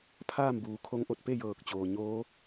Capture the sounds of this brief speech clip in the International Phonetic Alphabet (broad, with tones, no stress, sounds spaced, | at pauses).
pʰ aː˥˨ m b uː˩ kʰ o˧˥ ŋ ʔ o˧˩ t̚ p e˥˨ j ɤː˧˩ k̚ t͡ɕ oː˩ ɲ oː˧˥